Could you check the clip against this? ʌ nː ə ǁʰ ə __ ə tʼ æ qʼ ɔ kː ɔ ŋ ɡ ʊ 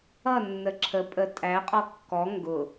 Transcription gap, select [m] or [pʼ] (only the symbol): pʼ